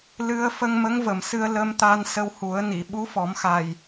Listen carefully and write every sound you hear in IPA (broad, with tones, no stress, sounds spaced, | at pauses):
l ɨ˧ ə̯ f ə˧ ŋ m ə˧˥ ŋ v ə˨˩ m s ɨ˧ ə̯ l ə˧ m t̪ a˧ n s ə˧ w h u˨˩˦ ə̯ n i˨˩˨ ɓ u˧˥ f ɔ˨˩˦ m x a˨˩ j